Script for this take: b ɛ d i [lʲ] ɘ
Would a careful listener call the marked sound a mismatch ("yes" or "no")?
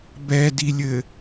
no